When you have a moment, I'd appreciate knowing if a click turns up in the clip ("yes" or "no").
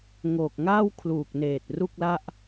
no